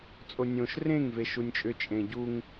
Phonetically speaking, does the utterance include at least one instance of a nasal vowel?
yes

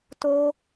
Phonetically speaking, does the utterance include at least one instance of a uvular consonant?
no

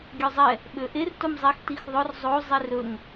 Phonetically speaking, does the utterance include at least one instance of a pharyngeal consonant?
no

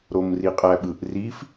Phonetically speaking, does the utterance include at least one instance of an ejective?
yes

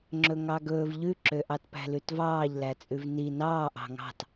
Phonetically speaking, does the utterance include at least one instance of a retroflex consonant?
no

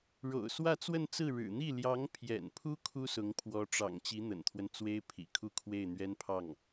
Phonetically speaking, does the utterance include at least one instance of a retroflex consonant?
yes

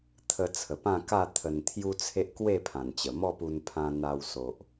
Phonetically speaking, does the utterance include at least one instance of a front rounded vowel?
no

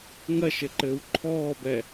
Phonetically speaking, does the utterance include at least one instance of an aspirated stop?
yes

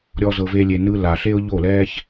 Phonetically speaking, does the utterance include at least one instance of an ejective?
no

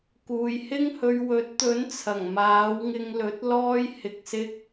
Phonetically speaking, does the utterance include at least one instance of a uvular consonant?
no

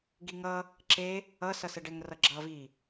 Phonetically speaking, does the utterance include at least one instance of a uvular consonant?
no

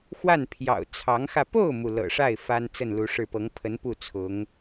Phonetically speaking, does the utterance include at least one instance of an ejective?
no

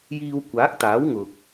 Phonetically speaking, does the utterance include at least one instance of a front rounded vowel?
no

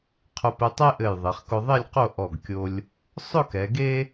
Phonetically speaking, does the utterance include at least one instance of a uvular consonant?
yes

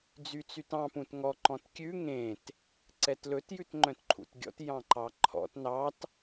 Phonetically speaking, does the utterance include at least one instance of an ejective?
no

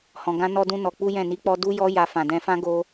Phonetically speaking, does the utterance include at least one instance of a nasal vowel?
yes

